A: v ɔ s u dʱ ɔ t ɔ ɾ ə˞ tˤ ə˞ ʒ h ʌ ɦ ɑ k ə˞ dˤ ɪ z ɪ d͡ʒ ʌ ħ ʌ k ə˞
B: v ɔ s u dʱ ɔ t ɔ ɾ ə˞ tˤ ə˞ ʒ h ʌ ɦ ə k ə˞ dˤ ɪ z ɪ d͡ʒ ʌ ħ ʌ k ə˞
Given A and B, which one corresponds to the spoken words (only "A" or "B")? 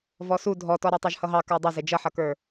A